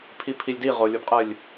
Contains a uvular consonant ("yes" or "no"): yes